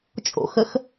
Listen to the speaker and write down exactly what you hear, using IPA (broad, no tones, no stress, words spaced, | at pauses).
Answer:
t͡ʃʼo̰xəx